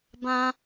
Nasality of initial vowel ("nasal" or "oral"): nasal